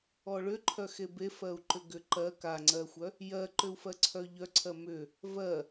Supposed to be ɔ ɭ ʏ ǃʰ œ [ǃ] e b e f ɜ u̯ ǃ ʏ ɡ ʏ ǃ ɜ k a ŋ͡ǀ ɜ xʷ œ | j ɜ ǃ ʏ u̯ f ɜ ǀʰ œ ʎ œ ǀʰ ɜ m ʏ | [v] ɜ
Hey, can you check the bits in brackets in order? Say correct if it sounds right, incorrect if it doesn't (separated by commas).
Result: incorrect, correct